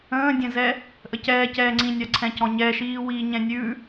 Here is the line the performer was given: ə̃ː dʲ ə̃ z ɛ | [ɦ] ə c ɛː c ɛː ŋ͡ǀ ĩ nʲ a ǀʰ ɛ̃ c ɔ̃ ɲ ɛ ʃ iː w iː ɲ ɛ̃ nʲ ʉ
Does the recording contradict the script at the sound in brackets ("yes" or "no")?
yes